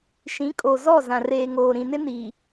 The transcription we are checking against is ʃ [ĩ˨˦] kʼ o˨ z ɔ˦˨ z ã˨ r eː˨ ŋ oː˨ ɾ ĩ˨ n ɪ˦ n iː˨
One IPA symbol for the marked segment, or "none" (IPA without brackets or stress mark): ĩ˨˦